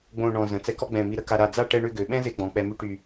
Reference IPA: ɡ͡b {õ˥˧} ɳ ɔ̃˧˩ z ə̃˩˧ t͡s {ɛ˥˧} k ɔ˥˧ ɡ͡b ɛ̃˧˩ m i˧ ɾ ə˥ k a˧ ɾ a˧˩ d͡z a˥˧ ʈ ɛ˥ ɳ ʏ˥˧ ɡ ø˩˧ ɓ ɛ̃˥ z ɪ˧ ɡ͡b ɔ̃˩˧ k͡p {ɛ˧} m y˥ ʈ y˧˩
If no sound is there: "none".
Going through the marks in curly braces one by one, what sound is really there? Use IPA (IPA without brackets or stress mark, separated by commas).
õ˥˧, ɛ˧, ɛ˧